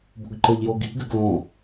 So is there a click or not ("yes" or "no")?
yes